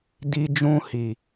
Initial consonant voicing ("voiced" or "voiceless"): voiced